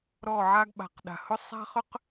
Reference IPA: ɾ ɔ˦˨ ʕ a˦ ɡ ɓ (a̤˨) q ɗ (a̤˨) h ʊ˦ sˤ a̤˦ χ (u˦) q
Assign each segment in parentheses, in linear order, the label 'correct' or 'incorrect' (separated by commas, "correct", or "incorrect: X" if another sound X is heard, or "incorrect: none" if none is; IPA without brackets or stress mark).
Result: correct, correct, incorrect: ʏ˦